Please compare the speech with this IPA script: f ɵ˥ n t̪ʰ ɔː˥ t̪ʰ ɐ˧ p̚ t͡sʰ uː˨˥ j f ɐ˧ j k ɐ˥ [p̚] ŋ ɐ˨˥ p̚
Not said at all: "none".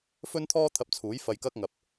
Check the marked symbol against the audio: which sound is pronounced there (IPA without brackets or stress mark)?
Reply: k̚